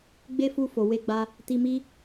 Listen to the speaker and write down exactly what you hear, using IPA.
ɡ͡b e˦ f u˧ f o˨ w e˧ ɡ͡b a˧ | t i˧ m i˦

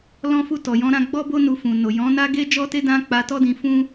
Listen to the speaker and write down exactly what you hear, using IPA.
l ɔ̃˦ f u˦˨ t ɔ˨ j ɔ̃˧ ɾ ã˧ ɡ͡b ɔ˦ b o˦ n u˧ f ũ˨ n o˨ j ɔ̃˨˦ n a˦ ɡ e˦ d͡ʒ ɔ˦ t e˦ d ã˦ k͡p a˧ t ɔ˦ d ĩ˧ f ũ˦

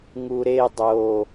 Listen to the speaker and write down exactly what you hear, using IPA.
ŋ u ɾ e dˤ o

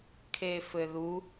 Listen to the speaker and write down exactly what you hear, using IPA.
kʰ e f ɘ ð u

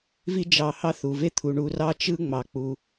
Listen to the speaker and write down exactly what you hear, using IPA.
v i˦ d͡ʒ ɑ˨ h ɑ˦ θ u˩ v e˥ t̪ʰ u˩ ɳ u˨ r ɑ˦ t͡ʃ ɯ˦ ŋ͡m ɑ˩ k͡p u˩

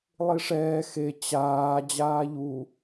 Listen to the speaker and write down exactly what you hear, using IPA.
lˠ i ʂ ɛː x e t͡ɕ aː d͡ʑ aː ʎ u

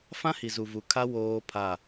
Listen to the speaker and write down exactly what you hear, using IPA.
f ã˦ h i˨ z u˨ v u˨ kʰ a˦ w oː˦ pʰ a˦˨

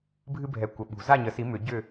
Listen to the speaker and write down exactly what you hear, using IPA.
bʱ ɨ˦ bʱ ɛ˨˦ kʷ ə˨ ɓ ṳ˨˩˦ z a˥˨ ɲ ə˨˩˦ s i˨˦ m ʏ˨˩˦ ɟ ʏ˥˨

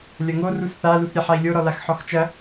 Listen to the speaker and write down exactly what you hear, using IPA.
lʲ ɐ ŋ o r u s θ a l u θ ɾʲ ɛ ħ a i̯ lʲ o ɾ ɔ l a x ħ ɔ x t͡ʃ ɐ

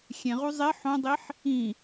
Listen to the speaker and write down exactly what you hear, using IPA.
xʲ ẽ ʁ u zˤ e ħ õ dˤ i ħ | ĩ

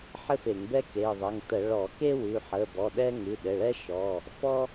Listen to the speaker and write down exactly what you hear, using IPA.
ħ ɘ˥ f e˧˩˧ ŋ b ɛ˥ k e˩˧˩ ðˤ ɘ˩˧˩ ŋ t ə˧˩˧ ɭ ɔ˧˩˧ k e˥ w ʉ˩˧˩ ħ ə˩˧˩ b ɔ˩˧˩ ɗ ɛ˥ ŋ ʉ˩˧˩ ɗ ɘ˩˧˩ ɭ ɛ˥ ʃ ɔ˩˧˩ | f ɔ˥

